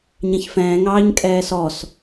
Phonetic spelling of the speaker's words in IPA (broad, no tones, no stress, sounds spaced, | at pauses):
ɲ ɛ̃ ç f ɛ̃ː ŋ ɑː ɲ kʼ ɛː s ɔ s